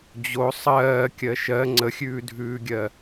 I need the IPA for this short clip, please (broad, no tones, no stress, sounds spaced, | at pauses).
d͡ʑ o sˤ ɜː kʲ ɜ ʃ ɜ ŋ͡ǀ ə xʲ ʉː dʱ ʉː ɡʲ ɜ